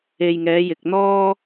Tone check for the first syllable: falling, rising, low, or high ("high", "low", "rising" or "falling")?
low